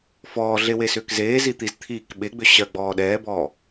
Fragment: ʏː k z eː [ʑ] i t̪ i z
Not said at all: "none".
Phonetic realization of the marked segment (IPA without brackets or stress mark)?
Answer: z